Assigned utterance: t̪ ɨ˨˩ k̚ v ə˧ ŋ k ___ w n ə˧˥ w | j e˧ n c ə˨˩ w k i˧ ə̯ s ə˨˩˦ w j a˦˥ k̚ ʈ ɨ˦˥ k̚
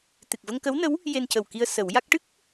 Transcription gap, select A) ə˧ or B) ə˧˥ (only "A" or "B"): B